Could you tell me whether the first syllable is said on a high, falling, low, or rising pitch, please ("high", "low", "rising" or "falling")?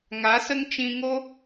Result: rising